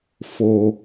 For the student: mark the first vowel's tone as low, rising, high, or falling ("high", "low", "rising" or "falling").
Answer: low